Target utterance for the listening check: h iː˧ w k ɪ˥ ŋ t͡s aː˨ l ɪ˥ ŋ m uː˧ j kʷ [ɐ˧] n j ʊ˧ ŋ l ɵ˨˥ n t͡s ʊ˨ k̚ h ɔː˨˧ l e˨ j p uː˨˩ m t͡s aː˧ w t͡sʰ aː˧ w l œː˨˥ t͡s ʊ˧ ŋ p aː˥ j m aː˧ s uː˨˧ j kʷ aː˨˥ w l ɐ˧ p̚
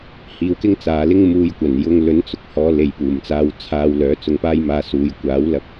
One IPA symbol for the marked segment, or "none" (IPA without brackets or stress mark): ɐ˨˩